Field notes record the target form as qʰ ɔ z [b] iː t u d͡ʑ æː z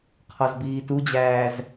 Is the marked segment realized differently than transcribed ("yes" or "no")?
no